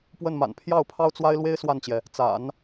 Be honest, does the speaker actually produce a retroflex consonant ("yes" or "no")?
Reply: no